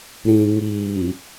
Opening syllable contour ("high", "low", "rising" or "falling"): low